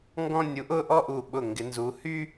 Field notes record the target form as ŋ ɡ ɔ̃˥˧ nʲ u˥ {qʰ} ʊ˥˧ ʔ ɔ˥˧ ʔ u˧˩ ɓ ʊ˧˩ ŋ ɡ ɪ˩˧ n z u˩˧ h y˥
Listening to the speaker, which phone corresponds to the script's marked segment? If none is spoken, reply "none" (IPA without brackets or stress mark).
ʔ